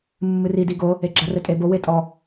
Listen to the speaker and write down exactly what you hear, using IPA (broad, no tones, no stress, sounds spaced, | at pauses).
mː ɨ r i d i ɡ o | e ɡ͡ǁ a r ɘ tʼ e b o w e tʼ ɔ